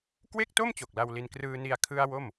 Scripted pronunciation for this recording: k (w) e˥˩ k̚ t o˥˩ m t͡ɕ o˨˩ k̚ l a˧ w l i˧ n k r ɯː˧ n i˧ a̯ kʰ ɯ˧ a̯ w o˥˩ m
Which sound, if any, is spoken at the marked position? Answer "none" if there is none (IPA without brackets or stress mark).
w